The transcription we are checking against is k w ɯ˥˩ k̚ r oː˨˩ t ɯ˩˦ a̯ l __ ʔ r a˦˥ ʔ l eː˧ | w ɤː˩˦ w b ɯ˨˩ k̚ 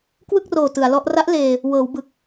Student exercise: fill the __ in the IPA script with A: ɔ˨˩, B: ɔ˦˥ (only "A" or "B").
B